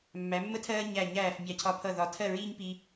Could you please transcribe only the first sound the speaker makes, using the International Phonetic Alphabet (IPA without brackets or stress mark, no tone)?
mː